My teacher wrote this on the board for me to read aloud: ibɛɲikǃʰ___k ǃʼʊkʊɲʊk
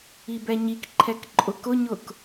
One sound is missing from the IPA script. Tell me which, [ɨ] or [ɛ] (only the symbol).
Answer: ɛ